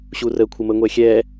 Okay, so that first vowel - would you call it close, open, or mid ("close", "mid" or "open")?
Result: close